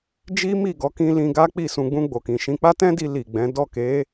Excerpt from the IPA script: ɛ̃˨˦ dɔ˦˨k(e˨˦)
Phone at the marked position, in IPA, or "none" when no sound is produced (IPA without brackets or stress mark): e˨˦